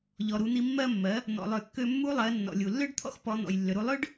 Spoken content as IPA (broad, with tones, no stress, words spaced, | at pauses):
ʎɔ˩ɾu˩˧n̪i˧ mːɜ˧mːɜ˩˧ | n̪ɔ̰˩lˠø˩kːø˧ mːu˧˥lˠɜ˩˧ nːɔ̰˩lʲu˩lːø˥ɖt̪ʰɔ̰˥x pɔ˩˧ n̪ɔ̰˩jlːʏ˩ɾu˧ lˠø˥ɖ